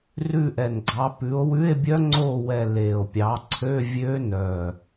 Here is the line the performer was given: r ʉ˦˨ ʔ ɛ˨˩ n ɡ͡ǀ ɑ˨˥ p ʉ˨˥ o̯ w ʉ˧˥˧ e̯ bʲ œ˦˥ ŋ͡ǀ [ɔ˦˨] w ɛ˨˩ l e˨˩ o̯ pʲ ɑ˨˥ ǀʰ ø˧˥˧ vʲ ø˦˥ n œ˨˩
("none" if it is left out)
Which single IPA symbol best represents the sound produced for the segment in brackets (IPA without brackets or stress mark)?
o˦˨